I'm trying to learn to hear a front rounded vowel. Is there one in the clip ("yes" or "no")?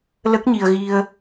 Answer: no